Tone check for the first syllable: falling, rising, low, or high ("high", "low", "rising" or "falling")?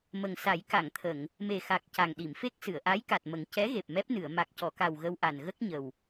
low